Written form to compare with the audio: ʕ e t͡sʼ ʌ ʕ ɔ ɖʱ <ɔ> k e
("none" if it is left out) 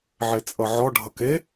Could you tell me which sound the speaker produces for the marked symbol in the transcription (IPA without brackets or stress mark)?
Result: ʌ